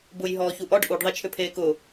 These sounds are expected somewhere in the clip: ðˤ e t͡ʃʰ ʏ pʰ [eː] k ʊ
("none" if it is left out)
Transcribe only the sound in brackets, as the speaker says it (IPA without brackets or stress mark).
eː